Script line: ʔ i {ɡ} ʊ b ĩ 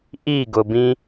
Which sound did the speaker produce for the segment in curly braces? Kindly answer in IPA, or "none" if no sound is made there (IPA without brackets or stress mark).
ɡ